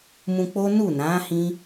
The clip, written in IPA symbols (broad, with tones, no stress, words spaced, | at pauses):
mũ˧k͡po˦ nu˦˨nã˨˦ hĩ˦